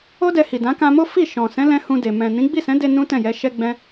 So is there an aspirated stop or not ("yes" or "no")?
no